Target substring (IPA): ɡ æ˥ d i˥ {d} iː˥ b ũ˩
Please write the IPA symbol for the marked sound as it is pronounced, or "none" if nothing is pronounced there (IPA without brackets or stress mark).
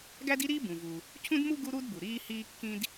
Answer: ɾ